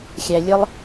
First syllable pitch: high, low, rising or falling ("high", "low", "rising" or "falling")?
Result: low